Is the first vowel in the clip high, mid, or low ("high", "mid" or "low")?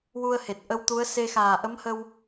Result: high